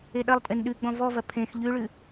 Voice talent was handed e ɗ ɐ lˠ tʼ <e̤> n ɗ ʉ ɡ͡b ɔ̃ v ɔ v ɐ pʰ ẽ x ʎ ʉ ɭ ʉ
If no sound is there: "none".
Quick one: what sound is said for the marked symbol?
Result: e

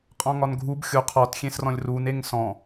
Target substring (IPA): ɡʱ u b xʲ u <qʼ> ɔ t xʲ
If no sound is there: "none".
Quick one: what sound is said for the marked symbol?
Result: qʰ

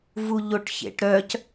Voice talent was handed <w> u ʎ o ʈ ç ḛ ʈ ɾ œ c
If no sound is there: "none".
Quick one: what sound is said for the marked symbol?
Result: v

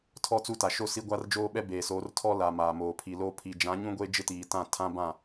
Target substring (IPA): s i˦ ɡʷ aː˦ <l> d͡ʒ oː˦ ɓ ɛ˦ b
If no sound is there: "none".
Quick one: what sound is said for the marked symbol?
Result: r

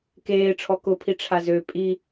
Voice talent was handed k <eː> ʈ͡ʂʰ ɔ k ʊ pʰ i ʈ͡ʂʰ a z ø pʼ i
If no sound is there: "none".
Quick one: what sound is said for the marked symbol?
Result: eː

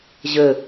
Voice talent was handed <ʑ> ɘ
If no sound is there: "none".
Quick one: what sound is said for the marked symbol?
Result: ʑ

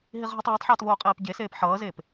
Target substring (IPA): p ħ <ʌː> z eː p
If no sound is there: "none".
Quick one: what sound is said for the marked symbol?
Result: ʌː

